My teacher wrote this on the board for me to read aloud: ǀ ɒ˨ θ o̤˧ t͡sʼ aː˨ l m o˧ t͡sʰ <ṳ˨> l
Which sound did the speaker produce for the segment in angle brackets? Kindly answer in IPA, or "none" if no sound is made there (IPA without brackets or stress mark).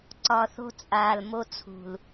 ṳ˨